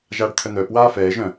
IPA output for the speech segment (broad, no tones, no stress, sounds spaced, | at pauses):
ʒ aː ɖ t̪ʰ œ n̪ œː p w aː f ɛː ʒ œ̃